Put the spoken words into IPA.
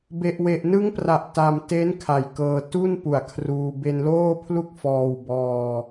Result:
b e˨˩ ʔ w e˨˩ ʔ n ɯ˦˥ ŋ p r a˨˩ ʔ t a˧ m t e˦˥ n kʰ a˨˩ j k ɤː˧ t u˥˩ n p u˩˦ a̯ kʰ r uː˧ b e˧ n l oː˥˩ pʰ l u˥˩ k̚ f ɔː˧ w b ɔː˧

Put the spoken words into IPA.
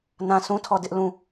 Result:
n ã˦ s ũ˦ tʰ ɔ˦˨ d ɪ˦ ʔ l ũ˦˨

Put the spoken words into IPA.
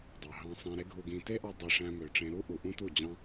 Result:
dˤ ɑ˨ ɦ ɑ̃˧ sˤ ẽ˧ ɾ e˦ ɡʱ u˧ ɡ ĩ˧ t e˦ ʔ ɑ˧ dˤ e˧ ʂ æ̃˧ m ø˨ ʈ͡ʂ ẽ˧ ɾ u˦ ʔ u˨ ʔ ũ˦ t u˦˨ d͡ʑ ɑ̃˦

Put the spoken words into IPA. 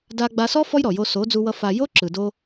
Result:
d a˧ ɡ͡b a˧ s ɔ˦ f ɔ˦ j ɾ ɔ˨ j o˧ s o˨˦ d͡z u˧ w ʌ˧ f a˨ j o˦ ǁ ɯ˨ d o˧

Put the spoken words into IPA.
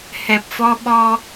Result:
h ɛ˨˩ p̚ f ɔ˧ ɓ ɔ˧

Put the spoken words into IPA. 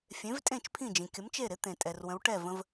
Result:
fʲ ẽ˩˥ v tʼ ẽ˥˩ t͡ʃ pʰ ĩ˥˩ d͡ʒ ĩ˩ kʲ ə˩˥ m t͡ʃ e˥˩ ɾ ɪ˩˥ t̪ ẽ˩ tʼ ɛ˩ r w ə̃˩˥ w ʈ ɛ˥˩ v ə̃˧ v

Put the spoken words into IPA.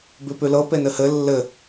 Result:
b ʉ p ʉ l ɤ p e n ɘ h ɘ lː ɘ

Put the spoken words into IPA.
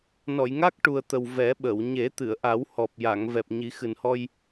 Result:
n ɔ˨˩˨ j ŋ a˦˥ k̚ ʈ u˨˩ ə̯ t̪ ə˨˩ w v ɛ˨˩˦ ɓ ə˨˩˨ w ɲ e˨˩˦ t̪ ɨ˨˩˨ ə̯ ʔ a˨˩˦ w h ɔ˨˩ p̚ j a˨˩˨ ŋ v ɛ˨˩ p̚ ɲ i˨˩˦ x ɨ˨˩ n h ɔ˧ j

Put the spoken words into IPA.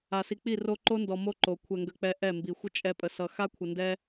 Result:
a˨ s i˨ k͡p i˦˨ r o˦ ǃ o˦ n d ɔ˨ m o˦ ǃ o˨ kʷʰ ɛ˨ ŋ ɡ ə˨ k͡p ɛ˨ ʔ ɛ˦˨ m b i˨ xʷ ə˦ t͡ʃʼ ɛ˨ pʼ ə˨ s ʌ˨ x a˦ kʷʰ ə˨ n d ɛ˦

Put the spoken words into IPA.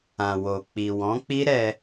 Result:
ã˨ w o˨ k͡p i˨ w ɔ̃˨˦ k͡p i˦ ɾ ɛ˧

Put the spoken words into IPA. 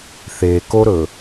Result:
θ e k o ɾ ɵ

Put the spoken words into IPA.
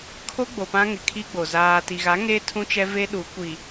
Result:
kʰ o˦ ɡ͡b o˨ p ã˦ ŋ ɪ˨ kʰ i˦ ɡ͡b o˨ z aː˨ t i˨ ɣ a˨˦ ŋ e˦ tʰ ũ˦ t͡ʃ ɛ˦ v e˦ ɗ u˨˦ kʷ i˨

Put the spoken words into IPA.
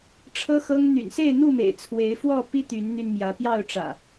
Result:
ʈ͡ʂʰ ɤ˦ x ɤ˦ ŋ n̪ y̰˨˩ n s e˥˨ ɪ̯ n̪ u˥˨ m ḛ˨˩ ɪ̯ t͡sʰ w e˨˦ ɪ̯ f w ɔ˥˨ p i˦ t̪ y˨˦ n n̪ y˧ n m j ä˨˦ p j ɑ˥˨ ʊ̯ ʈ͡ʂ ä̰˨˩

